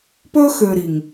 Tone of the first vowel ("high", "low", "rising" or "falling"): high